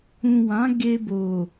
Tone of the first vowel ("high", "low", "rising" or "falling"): low